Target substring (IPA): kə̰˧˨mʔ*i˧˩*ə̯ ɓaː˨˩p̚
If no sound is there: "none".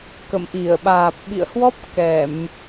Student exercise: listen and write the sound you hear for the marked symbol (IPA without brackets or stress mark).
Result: i˧˩